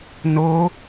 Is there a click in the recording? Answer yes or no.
no